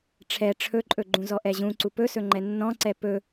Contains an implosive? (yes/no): no